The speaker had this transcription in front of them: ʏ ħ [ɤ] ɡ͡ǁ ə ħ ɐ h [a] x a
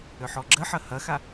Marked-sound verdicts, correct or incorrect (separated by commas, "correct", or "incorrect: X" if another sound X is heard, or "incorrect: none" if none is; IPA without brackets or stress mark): incorrect: ɔ, incorrect: ɐ